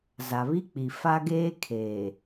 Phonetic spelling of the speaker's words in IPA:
z a˨ β i˦ k͡p i˨ f a˦ ɡ eː˦ kʰ eː˨

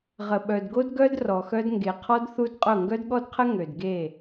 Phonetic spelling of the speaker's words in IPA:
ʁ ə˨ ɓ œ˨ d ɡ o˦ d ɡ œ˦ d r ɔ˨ x œ˦ d ŋ ɡ e˨ qʰ ɔ˦ d θ u˦ d qʼ ʊ˦˨ ŋ ɡ œ˦ d ɠ ɔ˦ d qʰ ə˦ ŋ ø˨ d ɡ e˦˨

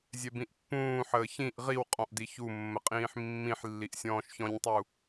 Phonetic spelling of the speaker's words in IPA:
zʲ ɛ b ĩ ʔ pː ũː ħ əː ç ĩ ʔ ʁ i w qʼ ɔ̃ ʔ d i ç u mː ə qʼ ĩː ħ mː ĩ ħ lː i ʔ sʲ ɔ̃ː ʃ ç ɔ̃ ɲ tˤ u

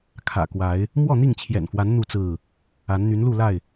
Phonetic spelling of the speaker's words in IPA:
kʰ ä̰˨˩ k w a˨˦ ɪ̯ | m w ɔ˥˨ n̪ i˥˨ ŋ t͡ɕʰ j ɛ̰˨˩ n f w a˨˦ n n̪ u˥˨ t͡s ɹ̩˥˨ | a˨˦ n n̪ y˨˦ n l u˥˨ l a˥˨ ɪ̯

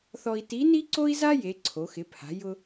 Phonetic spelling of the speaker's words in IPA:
θ ɔ˧ i̯ t i˧˥ n i˥ ǀ o˥ i̯ z a˥ j e˩˧ ǀʰ o˩˧ x ɪ˩˧ pʰ a̤˩˧ j ʊ˧

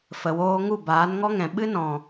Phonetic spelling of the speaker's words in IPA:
f ə˨ w oː˧ ŋ u˦˨ b aː˨˦ n ŋ ɔ˦ ŋ ɛ̃˨ ɓ ɨ˦ n ɔ̃˨

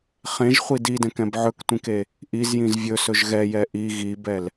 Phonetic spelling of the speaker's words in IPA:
χ ẽ ʒ χʷ i d i d ɛ̃ k ɛ̃ b ʕ ɵ k tʷ ĩ k e | ʔ i z j ĩ z vʲ ɵ s ɵ ʒ ɣ ɛ j ɛ ʔ i ɣ i b ɛ l

